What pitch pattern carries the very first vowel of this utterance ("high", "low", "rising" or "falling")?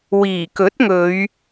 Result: low